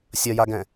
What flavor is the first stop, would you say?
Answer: plain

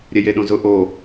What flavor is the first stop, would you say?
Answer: implosive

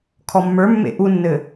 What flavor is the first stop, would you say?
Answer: aspirated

